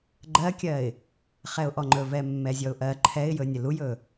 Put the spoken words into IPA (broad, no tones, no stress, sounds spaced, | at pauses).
ɡ͡ǃ ɜ kʲ ɜ ɪ̯ | χ ɛ ʊ̯ ʔ ɔ ŋ͡ǃ ɵ v ɛ mː ɛ zʲ ɔ ʊ̯ ʔ ɜ ǃʰ ɛ ɪ̯ j ɵ nʲ ə l u j ɵ